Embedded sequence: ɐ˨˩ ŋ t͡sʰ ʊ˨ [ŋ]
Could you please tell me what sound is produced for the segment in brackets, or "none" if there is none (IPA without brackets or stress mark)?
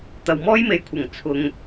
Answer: ŋ